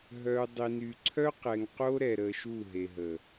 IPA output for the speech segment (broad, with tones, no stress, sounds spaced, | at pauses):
ɦ œ˨ u̯ dˤ i˨ n y˨ ǀʰ œ˦ q ɛ˨ ŋ q o˦ ɾ ɛ˨ ɾ ə˨ ʃ u˦˨ ɦ e˨ ɦ ə˨